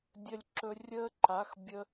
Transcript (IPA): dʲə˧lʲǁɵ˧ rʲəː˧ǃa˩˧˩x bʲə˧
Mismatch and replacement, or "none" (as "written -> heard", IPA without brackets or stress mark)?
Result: none